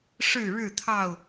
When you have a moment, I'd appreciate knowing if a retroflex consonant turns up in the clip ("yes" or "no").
yes